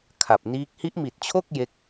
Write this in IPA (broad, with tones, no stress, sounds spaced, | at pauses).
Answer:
kʰ a˨˩ p̚ n iː˦˥ k̚ h i˦˥ ʔ m i˨˩ t̚ t͡ɕʰ o˥˩ k̚ j e˦˥ k̚